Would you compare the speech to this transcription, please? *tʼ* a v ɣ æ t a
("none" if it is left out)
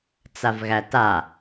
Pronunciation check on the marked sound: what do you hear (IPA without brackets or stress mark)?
t͡s